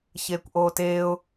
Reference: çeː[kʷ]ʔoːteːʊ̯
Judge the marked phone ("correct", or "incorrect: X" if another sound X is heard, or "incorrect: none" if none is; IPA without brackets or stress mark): correct